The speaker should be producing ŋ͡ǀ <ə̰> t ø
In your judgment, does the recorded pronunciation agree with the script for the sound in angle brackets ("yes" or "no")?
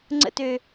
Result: yes